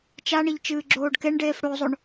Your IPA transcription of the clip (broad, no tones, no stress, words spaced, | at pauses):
t͡ʃaɳiʎ t͡ʃɨːɡ͡ǁoːɖkeɳɖeːf ɽozˤoɳ